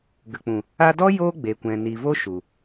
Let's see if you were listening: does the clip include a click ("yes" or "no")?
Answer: no